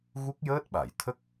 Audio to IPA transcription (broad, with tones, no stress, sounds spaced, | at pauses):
ɣ u˦˥ k̚ j əː˦˥ t̚ ɓ a˨˩˨ j t̪ʰ ə˦˥ k̚